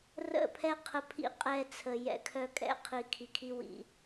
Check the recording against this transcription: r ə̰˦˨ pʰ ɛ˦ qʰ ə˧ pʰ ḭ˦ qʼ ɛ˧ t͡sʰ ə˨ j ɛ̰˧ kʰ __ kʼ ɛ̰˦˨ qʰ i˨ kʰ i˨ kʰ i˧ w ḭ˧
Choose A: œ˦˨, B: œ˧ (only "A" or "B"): B